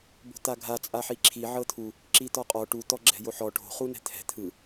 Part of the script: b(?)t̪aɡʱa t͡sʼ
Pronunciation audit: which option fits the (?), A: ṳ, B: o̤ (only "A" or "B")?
B